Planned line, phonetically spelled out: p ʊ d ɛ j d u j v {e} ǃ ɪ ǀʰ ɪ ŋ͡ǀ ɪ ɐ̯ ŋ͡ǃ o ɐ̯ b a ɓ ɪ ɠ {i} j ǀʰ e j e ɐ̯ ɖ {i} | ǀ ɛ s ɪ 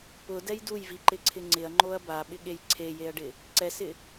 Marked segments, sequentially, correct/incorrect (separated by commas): incorrect, incorrect, incorrect